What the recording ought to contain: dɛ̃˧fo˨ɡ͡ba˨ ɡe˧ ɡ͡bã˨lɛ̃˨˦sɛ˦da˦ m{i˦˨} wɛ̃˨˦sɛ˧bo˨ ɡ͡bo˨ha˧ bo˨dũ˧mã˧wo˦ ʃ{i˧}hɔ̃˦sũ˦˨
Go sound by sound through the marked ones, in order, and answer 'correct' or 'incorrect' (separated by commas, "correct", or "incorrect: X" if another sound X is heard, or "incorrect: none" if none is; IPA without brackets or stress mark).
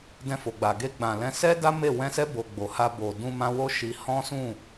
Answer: incorrect: e˦˨, correct